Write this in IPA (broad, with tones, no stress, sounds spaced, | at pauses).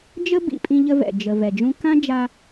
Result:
d͡ʒ ə˥ b ḭ˩ pʼ ĩ˧ ʎ ə˧ v ɛ̰˩ d͡ʒ ə˩ v ɛ˩ d͡ʒ ũ˧ k ã˥ d͡ʒ a˧